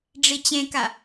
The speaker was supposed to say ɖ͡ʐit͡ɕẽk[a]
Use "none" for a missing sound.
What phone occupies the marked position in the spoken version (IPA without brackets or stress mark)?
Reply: a